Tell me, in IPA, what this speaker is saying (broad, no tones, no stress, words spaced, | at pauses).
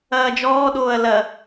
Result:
ɐːd͡ʒɔːɗoːɐ̯ lɐ